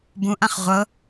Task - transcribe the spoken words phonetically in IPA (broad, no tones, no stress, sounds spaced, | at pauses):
b ũ ʔ ã χ ʁʷ ɤ